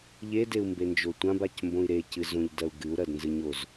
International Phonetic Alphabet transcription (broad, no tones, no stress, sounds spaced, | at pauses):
ʎ e d e u̯ m b e n d͡ʒ o tʷ ã b a c m b õ i̯ ɾ e c ɨ z õ ʎ d ɐ u̯ ɡ ɨ u̯ ɾ ɐ d n z ɨ ɲ o z